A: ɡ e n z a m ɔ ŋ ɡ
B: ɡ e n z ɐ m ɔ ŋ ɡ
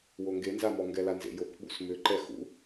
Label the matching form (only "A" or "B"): A